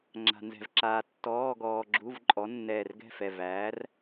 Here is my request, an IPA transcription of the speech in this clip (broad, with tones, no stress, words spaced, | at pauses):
ŋ͡ǁa̤˧nzɛ̤˧vǁaː˧ tːɔː˧˥˧ɡɔː˧ ɡ͡ǁu˧˥˧v ǃʼɔ˨˥nːɛː˧˩rɡɛ̤˥˩fɛ˧˩ væː˨˥r